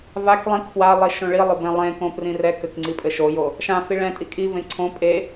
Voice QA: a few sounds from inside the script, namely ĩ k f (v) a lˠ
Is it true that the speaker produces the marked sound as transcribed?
no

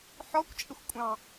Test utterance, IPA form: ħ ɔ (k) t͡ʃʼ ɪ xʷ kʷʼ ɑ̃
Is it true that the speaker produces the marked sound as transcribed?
no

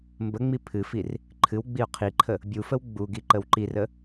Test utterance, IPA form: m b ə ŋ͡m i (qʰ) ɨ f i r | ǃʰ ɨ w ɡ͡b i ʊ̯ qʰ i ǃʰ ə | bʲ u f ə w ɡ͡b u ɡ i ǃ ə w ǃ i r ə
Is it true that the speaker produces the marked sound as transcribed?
no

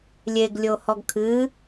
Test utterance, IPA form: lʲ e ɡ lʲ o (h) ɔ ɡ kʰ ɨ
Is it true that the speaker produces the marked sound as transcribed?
yes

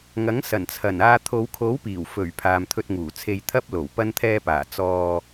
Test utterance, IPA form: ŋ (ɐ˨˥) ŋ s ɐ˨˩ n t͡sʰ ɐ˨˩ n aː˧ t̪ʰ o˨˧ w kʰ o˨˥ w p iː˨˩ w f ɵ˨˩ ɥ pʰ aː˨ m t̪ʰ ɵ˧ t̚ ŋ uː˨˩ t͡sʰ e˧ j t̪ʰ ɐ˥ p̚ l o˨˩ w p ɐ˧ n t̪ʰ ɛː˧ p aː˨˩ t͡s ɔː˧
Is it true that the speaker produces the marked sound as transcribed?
yes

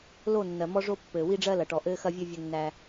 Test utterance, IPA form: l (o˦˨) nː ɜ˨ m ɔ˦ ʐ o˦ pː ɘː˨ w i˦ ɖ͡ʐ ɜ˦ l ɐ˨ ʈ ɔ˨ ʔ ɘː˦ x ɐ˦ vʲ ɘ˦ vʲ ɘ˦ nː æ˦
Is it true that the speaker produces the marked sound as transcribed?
yes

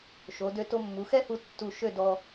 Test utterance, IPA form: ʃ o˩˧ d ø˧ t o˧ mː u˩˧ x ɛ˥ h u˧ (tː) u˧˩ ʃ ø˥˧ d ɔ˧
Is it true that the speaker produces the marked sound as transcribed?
yes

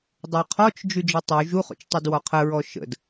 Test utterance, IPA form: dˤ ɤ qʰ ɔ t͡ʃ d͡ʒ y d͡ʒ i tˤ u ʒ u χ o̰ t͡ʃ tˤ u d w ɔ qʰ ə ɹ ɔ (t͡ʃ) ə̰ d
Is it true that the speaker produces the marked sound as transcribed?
no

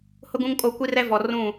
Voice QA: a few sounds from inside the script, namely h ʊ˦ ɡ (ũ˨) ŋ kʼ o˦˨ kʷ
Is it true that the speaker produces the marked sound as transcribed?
no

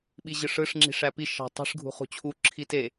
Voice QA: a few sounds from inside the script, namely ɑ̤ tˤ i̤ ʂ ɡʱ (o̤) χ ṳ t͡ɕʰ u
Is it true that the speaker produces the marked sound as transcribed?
no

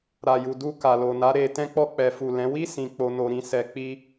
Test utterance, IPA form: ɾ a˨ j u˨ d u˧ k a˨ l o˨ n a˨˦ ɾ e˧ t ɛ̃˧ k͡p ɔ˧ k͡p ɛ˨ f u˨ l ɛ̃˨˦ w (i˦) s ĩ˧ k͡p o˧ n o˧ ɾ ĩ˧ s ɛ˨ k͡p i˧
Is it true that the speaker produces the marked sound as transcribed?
yes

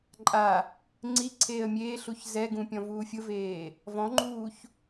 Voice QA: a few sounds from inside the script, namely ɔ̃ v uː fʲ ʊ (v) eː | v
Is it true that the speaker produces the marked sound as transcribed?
yes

